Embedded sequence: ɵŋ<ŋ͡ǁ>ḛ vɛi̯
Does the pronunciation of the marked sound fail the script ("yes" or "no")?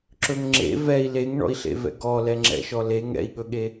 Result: no